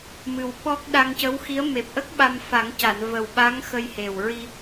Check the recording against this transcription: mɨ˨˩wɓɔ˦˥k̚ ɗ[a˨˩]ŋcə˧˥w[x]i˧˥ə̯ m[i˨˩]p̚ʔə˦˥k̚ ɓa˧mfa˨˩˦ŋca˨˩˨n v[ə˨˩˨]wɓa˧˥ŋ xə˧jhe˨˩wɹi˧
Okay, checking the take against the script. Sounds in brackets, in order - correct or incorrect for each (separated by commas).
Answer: incorrect, correct, incorrect, incorrect